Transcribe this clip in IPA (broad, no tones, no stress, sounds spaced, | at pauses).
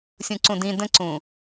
sʲ ũ ǀ ũ d ĩ d ə̃ ǀ ũ